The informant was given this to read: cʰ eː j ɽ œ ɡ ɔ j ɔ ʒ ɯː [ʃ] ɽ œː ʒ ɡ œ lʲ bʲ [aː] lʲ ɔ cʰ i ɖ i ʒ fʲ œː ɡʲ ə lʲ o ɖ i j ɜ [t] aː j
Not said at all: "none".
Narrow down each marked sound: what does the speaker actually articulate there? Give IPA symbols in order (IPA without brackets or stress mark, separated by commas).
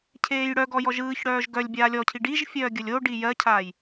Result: ç, aː, cʰ